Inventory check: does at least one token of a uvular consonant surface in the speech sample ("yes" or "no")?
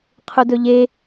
yes